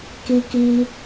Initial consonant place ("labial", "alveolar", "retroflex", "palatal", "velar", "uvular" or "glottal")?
velar